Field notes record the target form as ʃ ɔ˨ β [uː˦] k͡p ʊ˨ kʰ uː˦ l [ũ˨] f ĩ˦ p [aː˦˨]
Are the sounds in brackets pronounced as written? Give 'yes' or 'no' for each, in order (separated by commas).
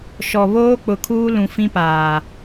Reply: no, yes, no